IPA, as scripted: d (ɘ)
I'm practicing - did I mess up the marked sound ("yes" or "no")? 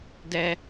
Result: yes